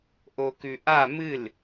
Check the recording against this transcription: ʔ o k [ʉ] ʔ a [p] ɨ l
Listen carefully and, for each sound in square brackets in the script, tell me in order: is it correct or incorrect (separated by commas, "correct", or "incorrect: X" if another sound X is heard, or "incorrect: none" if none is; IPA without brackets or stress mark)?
correct, incorrect: m